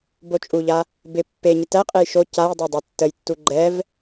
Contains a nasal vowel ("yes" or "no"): no